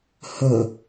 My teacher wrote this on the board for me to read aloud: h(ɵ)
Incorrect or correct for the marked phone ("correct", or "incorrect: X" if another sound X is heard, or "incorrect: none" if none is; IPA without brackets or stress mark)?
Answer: correct